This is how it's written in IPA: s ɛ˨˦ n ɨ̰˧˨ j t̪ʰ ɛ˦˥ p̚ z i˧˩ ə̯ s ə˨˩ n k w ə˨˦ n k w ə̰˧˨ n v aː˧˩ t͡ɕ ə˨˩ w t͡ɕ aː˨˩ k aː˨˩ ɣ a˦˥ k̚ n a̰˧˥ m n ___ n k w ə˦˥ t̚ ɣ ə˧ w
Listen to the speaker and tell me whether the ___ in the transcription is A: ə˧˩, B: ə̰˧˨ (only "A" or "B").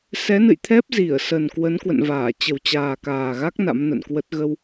B